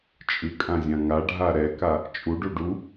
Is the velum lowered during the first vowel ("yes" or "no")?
no